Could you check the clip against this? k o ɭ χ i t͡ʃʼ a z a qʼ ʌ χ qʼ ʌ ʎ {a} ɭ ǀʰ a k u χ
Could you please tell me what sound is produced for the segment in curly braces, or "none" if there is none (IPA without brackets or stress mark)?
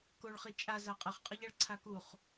a